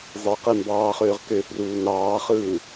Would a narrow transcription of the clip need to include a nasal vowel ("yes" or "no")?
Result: no